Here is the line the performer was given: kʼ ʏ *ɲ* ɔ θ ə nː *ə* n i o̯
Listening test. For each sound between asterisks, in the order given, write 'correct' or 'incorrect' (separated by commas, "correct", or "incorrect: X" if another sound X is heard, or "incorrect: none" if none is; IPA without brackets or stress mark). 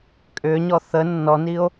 correct, incorrect: ɔ